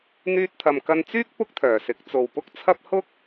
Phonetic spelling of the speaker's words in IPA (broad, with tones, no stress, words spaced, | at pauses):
n̪yː˧t̚t̪ʰɐ˨mkɐ˧nt͡syː˥k̚ pʊ˥k̚t̪ʰœː˨˩sɪ˨˥k̚ t͡so˨wpʊ˥k̚t͡sʰɐ˥p̚ hʊ˥k̚